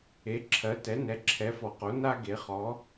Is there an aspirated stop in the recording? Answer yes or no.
yes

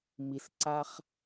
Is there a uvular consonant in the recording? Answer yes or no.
yes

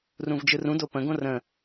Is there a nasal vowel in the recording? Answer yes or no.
yes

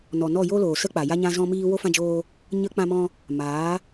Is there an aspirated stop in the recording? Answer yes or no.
no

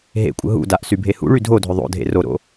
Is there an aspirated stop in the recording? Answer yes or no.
no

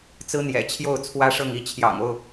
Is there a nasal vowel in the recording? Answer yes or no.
no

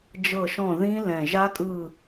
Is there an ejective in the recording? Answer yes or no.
yes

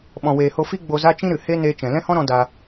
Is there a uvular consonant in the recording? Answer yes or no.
no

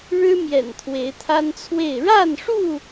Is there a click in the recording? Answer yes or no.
no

